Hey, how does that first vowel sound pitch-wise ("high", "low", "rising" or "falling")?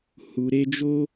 low